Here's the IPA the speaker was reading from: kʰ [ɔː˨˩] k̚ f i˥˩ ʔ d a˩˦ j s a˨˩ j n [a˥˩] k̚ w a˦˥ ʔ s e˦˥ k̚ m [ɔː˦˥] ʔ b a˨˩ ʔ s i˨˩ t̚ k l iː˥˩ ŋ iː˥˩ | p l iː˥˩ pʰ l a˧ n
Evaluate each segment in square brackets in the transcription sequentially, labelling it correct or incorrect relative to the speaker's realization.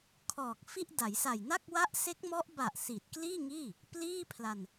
correct, correct, incorrect: ɔ˦˥

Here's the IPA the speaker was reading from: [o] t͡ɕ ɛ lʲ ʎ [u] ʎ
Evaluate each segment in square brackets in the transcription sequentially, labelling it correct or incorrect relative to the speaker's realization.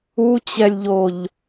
incorrect: u, incorrect: o

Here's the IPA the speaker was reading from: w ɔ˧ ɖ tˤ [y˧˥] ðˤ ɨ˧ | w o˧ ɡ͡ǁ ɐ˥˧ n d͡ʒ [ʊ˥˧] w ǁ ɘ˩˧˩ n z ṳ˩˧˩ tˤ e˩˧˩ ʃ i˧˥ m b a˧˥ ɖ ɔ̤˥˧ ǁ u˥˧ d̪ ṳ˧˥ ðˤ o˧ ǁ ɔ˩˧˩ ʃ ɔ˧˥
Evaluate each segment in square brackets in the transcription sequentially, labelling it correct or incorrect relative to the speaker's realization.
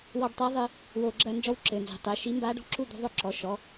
incorrect: i˧˥, incorrect: ɔ˥˧

